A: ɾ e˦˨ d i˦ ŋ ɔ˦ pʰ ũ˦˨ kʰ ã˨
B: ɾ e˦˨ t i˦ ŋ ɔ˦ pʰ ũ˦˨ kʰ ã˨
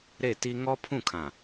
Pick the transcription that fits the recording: B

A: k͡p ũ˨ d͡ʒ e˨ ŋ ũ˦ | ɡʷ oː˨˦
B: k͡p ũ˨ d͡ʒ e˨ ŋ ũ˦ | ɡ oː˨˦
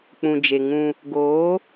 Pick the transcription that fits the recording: B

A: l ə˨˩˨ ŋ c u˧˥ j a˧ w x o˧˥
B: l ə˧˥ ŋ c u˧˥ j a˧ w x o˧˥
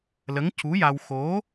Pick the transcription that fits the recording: B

